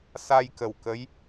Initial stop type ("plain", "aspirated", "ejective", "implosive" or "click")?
plain